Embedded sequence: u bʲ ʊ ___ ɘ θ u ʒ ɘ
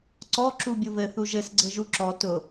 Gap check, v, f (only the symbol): v